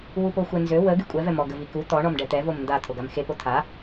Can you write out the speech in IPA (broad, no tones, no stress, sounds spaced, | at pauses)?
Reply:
w u p o xʷ ɛ n z ø w ə ɡ y kʷʼ ɛ v ɛ m ɔ ɡ ə v i k u t̪ ɔ ɳ ɔ m ɖ ɛ t̪ ɛ v o m n d a t̪ʰ o ɡ a m x e p o t̪ʰ a